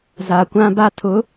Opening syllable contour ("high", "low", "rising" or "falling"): low